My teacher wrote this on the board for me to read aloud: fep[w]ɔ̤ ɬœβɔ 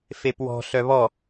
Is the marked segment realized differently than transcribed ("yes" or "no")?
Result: no